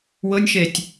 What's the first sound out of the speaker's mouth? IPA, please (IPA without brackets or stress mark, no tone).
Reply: w